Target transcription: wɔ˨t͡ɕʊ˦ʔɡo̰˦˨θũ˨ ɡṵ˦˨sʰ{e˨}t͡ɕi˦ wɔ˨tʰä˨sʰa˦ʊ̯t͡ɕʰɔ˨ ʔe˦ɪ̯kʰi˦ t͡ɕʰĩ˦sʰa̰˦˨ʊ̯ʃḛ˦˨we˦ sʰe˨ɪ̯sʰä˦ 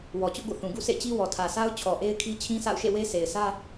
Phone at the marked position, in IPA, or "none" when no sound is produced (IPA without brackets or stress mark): ḛ˦˨